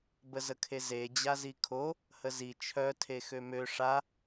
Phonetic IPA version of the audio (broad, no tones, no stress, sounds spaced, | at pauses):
b ə z ə kʰ e z e d͡ʑ a z i kʰ o | h ə z i t͡ʃʰ œ tʰ e x ø m ø ʂ a